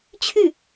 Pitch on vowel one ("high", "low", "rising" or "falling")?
falling